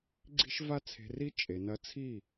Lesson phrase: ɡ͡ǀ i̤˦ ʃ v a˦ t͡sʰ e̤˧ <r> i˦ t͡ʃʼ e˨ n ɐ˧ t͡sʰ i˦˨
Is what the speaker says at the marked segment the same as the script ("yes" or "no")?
yes